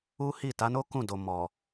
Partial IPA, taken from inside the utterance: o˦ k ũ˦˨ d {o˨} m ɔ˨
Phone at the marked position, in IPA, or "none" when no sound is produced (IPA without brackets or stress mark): o˨